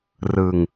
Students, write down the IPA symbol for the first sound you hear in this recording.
r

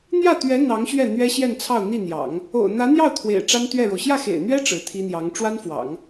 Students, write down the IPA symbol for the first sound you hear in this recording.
n̪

